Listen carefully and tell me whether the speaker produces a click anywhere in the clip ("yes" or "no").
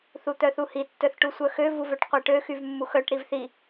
no